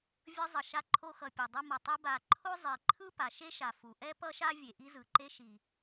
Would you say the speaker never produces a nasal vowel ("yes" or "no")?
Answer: yes